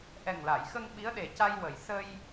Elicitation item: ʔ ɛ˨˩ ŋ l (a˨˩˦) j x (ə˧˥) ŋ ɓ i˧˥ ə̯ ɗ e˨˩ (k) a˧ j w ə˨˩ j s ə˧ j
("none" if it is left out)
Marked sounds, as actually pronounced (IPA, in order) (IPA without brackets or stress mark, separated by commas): a˨˩˨, ə˧, c